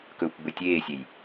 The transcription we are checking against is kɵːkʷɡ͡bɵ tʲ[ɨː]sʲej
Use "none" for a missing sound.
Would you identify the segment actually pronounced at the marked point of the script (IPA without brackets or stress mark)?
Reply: eː